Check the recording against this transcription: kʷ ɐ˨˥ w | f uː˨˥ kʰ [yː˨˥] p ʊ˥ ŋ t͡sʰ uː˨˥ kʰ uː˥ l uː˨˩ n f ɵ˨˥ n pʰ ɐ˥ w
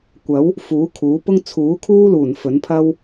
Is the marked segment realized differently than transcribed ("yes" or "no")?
yes